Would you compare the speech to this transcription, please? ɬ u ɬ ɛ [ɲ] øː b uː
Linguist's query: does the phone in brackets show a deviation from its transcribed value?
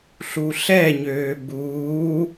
no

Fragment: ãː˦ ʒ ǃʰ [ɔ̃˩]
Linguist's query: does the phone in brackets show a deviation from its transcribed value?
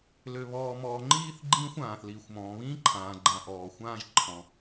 no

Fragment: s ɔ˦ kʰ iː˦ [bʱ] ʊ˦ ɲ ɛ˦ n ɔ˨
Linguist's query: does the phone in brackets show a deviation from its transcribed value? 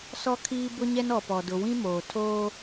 yes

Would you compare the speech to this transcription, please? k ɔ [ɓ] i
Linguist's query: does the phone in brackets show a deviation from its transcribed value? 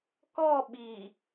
no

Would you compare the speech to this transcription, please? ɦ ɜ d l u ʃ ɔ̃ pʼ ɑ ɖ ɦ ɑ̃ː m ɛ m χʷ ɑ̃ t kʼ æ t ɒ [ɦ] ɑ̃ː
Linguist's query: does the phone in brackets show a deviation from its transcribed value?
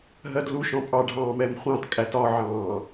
yes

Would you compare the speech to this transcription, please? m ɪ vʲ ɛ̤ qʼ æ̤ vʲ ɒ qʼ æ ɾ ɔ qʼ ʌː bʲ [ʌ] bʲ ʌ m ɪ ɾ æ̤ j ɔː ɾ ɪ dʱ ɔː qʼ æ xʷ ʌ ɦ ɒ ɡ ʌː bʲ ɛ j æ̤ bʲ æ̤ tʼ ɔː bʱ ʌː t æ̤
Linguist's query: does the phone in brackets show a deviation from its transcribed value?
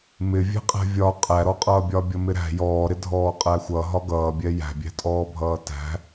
yes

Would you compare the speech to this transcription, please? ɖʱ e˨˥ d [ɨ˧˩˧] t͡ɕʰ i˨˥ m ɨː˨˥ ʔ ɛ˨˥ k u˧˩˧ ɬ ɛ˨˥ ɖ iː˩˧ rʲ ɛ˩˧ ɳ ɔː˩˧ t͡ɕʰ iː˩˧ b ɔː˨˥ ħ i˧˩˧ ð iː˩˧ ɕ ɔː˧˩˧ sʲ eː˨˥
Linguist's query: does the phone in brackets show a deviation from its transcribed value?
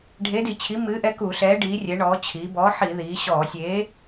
yes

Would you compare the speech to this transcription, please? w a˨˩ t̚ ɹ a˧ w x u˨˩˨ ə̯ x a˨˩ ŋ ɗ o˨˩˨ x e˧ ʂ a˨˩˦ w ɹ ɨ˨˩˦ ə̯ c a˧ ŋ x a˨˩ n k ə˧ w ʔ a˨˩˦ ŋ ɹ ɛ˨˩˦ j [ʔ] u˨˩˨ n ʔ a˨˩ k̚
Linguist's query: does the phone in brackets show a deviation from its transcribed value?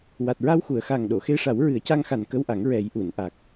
no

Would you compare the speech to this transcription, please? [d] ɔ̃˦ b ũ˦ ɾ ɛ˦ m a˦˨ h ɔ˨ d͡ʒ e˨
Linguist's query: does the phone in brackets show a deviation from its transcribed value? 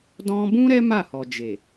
no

